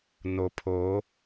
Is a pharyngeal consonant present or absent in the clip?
absent